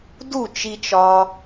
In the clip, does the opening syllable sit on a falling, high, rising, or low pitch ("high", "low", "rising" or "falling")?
falling